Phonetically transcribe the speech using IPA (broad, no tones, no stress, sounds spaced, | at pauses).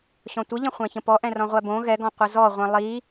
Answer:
ɕ ɔ̃ tʷ ə ʎ ə̃ χʷ æ̃ ç ə̃ p ɔ ʔ ɛ̃ r ɔ̃ ʁʷ æ b õ ɣ ɛ ɡ ɔ̃ qʷ ə z ɔ ʁʷ ĩ lˠ i